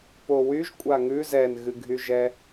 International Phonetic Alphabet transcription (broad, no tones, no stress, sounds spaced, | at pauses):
p o w y ʒ kʷʼ a ŋ ʉ z ɛ n ɣ ɨ ɡʱ y ʒ ɛ